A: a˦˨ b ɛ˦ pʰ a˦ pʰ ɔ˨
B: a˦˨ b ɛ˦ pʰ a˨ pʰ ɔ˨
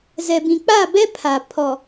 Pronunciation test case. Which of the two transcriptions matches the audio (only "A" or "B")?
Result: B